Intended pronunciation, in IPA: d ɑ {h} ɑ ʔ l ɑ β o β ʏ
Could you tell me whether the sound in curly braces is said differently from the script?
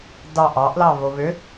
yes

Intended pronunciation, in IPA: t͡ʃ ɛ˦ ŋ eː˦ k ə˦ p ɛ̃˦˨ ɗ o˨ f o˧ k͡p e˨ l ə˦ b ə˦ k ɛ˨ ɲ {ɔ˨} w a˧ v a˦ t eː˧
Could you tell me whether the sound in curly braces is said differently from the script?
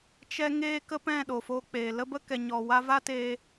no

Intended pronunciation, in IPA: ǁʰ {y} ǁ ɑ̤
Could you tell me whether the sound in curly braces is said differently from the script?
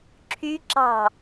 no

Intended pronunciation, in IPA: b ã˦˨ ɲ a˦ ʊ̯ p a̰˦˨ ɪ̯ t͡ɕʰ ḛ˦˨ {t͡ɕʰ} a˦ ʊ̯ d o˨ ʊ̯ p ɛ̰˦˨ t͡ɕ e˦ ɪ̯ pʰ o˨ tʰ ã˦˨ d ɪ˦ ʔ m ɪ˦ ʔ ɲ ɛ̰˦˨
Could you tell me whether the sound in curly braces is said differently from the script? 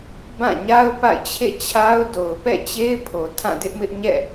no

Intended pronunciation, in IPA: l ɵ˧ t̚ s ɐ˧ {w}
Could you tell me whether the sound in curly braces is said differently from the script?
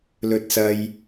yes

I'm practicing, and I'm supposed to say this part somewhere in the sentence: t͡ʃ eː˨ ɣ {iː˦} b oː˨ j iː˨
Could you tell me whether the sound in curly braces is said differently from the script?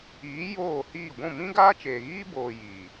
no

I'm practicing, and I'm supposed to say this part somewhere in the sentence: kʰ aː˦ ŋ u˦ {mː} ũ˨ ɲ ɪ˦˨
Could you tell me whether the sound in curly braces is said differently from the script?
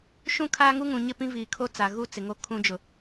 yes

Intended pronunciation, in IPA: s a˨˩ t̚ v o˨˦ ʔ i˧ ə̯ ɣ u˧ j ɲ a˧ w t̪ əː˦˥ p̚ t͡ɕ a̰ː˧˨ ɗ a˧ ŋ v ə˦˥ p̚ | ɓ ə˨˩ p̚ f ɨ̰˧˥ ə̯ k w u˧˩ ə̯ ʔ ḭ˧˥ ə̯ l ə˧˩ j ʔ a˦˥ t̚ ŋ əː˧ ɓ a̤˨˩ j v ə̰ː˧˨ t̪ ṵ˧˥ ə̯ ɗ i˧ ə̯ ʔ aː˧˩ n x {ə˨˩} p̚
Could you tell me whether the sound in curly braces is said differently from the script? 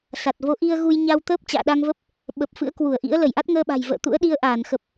no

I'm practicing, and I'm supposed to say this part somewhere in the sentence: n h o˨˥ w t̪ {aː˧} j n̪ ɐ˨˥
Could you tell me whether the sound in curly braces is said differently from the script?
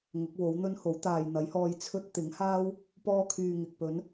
yes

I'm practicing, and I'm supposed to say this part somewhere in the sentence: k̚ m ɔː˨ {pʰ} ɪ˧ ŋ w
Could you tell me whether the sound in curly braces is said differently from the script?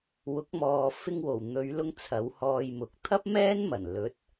yes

